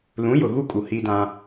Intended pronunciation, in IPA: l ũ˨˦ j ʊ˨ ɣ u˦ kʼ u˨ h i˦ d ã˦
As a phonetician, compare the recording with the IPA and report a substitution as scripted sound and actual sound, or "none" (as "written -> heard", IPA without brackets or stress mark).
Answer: none